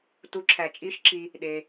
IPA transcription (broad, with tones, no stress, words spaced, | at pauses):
tu˨˥ǁʰæ˨ t͡ʃʼi˨˥ʃǁi˨ | ɗe˨